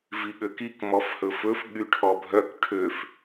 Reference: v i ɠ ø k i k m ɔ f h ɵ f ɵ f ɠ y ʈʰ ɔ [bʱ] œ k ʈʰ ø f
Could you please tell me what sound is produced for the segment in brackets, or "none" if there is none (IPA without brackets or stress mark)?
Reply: bʱ